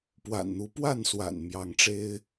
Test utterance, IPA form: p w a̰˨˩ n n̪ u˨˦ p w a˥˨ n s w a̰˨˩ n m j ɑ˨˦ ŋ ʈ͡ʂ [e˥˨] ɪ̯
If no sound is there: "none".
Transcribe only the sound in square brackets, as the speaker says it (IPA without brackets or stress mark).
e˦